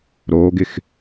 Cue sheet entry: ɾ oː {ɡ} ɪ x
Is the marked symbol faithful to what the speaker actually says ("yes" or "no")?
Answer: yes